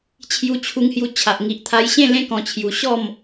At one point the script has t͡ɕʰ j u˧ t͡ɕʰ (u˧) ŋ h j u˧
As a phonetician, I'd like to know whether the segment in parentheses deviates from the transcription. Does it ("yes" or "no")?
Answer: no